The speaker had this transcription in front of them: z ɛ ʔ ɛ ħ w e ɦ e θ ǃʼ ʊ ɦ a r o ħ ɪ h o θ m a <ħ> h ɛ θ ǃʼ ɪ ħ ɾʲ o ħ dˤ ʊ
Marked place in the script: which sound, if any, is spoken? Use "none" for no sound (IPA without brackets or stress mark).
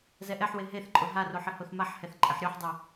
ħ